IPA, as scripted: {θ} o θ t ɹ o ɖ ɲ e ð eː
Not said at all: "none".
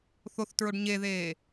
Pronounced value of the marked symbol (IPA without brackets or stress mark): θ